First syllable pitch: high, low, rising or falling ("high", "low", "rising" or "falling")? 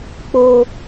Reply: low